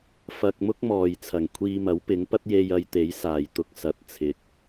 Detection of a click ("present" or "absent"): absent